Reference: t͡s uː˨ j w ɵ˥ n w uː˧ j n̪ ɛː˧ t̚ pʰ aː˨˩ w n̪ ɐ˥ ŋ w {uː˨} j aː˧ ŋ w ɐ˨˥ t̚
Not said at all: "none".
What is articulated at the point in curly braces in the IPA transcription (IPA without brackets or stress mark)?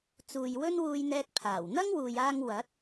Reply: uː˨